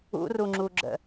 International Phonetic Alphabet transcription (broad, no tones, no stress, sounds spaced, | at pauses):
ṵ r u ŋ͡ǁ u ɡ͡ǁ ə̰